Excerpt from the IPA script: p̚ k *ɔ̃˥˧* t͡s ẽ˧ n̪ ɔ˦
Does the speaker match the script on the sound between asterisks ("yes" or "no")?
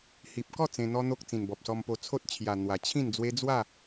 no